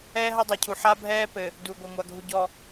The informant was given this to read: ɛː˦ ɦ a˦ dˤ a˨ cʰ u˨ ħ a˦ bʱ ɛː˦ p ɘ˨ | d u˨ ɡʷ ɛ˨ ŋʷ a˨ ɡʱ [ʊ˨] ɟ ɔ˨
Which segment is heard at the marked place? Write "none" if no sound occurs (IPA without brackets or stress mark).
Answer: u˨